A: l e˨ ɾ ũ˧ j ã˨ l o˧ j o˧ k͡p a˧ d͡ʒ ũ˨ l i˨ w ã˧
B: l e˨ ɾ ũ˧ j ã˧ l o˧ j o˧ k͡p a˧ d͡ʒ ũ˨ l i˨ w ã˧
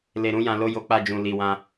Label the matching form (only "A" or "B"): A